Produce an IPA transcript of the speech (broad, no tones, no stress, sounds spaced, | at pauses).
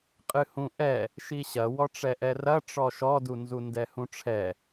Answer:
qʼ ɨ h ũ ʔ ɛ | ʃ i ɕ ɐ w ɔ ʈ͡ʂ ɛ ʔ ɛ r ɐ ʈ͡ʂ ɔ ʃ ɔ d u n z u n d ɛ h ũ ʈ͡ʂʰ ɛ